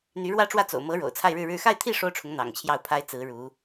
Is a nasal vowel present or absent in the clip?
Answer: absent